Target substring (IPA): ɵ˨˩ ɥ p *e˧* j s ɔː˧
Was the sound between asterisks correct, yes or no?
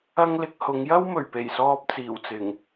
no